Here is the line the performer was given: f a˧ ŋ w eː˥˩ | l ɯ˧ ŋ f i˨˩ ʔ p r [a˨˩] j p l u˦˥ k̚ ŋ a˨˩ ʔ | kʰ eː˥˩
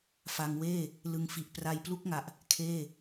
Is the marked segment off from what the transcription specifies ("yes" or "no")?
yes